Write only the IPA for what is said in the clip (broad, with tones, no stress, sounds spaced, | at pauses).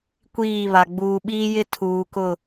kʷ iː˦˨ β a˨ ɡ͡b uː˨ ɓ iː˦ j ɪ˦ tʰ uː˨ k ʊ˦˨